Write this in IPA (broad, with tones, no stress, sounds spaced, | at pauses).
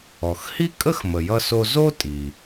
ɔ˩ x h i˥ kʼ ə˥ x m ə˩ j ʌ˧ s o˧ z o˥ tʼ i˩